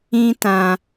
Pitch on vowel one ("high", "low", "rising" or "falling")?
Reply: high